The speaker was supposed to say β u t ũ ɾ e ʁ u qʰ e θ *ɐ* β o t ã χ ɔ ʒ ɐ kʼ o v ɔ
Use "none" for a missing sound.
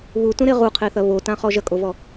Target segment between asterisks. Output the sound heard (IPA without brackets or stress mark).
ɐ